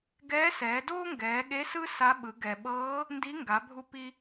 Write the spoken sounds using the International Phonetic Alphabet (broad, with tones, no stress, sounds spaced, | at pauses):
ɡ ɛː˧˥ s ɛː˩˧ d oː˥ ŋ ɡ ɛː˩˧ ɠ e˧˥ s ɯ˥ s a˧˥ ɓ ɯ˩˧ ɡ ɛ˩ ɓ ɤː˧˥ | n d i˧˥ ŋ ɡ a˩˧ bʱ u˧ p i˧